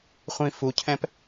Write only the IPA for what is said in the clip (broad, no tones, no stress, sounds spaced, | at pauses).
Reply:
χʷ ĩ f u cʰ ɛ̃ p